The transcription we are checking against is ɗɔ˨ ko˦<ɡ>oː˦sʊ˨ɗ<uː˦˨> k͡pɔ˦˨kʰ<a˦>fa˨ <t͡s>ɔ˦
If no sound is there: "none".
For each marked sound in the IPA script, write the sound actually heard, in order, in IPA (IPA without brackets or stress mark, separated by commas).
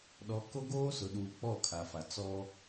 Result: ɡ, uː˨, a˨, t͡s